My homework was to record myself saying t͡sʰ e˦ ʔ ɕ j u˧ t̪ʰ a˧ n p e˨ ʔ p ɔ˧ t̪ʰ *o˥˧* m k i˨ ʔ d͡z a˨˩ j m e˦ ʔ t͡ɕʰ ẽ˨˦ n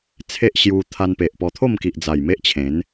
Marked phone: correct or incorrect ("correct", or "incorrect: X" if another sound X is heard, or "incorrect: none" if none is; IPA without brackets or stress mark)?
correct